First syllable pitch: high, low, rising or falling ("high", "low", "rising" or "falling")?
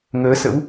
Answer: rising